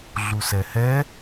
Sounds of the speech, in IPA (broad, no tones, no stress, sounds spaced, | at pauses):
ɮ u s ɛ h ɛ